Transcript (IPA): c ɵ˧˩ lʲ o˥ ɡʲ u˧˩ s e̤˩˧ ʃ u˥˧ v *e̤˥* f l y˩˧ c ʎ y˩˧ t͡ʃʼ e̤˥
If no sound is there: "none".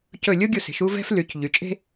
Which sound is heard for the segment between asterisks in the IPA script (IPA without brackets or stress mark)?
ɛ̤˥